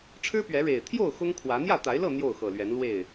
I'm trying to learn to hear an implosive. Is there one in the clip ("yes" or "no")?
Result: no